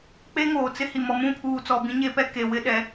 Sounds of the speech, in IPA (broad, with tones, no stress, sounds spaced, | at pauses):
k͡p e˦ ŋ oː˨ t͡s ɪ˦ h i˨ m ɔ˨ m ũ˦˨ pʰ uː˨ t͡s ɔ˨ b ĩ˦ ɲ e˦ p ɛ˦ k e˨ w ɪ˦ ɗ ɛ˨˦